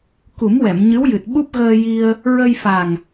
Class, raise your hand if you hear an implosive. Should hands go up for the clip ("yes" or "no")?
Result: yes